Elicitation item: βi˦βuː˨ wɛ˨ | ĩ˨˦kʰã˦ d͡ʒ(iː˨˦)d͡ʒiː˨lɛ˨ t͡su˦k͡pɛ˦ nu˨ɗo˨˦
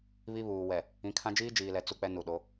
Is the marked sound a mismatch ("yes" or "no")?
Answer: yes